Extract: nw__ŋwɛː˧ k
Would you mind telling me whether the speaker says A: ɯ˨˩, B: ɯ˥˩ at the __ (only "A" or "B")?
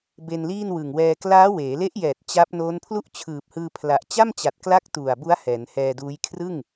A